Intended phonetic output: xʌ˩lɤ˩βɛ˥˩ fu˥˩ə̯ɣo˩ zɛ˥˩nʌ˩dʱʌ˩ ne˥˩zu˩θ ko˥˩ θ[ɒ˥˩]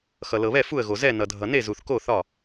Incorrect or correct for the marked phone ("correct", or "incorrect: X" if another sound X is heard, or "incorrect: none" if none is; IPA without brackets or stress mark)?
correct